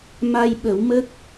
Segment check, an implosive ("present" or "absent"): present